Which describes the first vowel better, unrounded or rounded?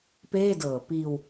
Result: unrounded